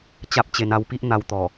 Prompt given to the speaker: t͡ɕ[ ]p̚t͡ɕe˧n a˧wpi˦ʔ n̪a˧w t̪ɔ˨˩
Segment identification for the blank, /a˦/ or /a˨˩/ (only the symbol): a˦